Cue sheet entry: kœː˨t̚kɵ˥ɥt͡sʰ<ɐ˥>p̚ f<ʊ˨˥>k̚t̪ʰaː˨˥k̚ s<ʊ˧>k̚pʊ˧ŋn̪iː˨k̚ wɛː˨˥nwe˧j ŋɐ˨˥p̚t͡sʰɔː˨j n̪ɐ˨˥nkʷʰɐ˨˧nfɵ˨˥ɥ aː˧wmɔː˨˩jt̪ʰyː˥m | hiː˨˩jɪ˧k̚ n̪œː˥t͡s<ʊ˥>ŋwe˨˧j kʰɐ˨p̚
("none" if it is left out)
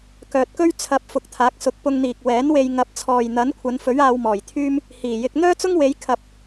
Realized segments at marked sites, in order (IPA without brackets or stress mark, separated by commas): ɐ˨˥, ʊ˨, ʊ˨˥, ʊ˥